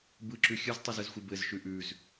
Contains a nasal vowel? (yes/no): no